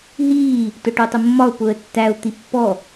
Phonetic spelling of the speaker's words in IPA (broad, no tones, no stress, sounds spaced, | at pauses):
ɦ iː | t ʊ ʈ u tˤ ɪ mː ɒ ʊ̯ p ʊ ə̯ tː æ ʊ̯ t̪ i pː ɔ